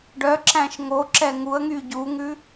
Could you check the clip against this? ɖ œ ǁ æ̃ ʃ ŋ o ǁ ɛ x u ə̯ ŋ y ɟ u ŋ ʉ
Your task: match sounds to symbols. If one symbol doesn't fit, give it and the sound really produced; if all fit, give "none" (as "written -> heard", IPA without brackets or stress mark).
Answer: x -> ŋ